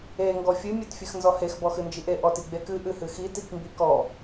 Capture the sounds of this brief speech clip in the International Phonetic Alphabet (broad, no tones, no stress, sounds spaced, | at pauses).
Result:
e ŋ ɡ ɔ fʲ ɨ mʲ e t fʲ ɨ x n z ɔ h e x b ɔ x ɨ n d͡ʒ i ʔ e ʔ ɔ t i ɡ͡b e k ɨ ʔ ɨ h ɨ x i t i k m b i k ɔ